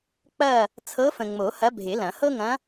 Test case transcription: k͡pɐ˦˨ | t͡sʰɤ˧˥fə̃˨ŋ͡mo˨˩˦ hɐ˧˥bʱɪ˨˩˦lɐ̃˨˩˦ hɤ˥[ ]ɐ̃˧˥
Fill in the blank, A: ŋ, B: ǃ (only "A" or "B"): A